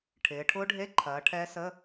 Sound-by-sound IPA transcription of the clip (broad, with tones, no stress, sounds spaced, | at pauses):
ʈʰ ɪː˩˧ ʈʰ ʊː˦˥ ɖʱ e˧˥˧ ǃʰ ɐː˩˧ ʈʰ ɛ˦˥ s ə˧˥˧